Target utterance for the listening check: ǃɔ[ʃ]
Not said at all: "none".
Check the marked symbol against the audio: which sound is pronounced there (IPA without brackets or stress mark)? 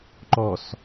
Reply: s